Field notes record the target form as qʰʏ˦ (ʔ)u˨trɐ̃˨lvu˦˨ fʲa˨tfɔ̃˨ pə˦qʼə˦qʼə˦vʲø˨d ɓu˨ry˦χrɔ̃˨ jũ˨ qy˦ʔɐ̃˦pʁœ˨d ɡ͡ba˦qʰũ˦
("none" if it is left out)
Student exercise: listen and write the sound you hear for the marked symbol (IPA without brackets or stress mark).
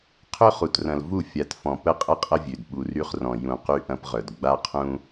χ